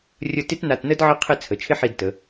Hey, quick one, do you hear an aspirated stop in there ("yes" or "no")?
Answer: yes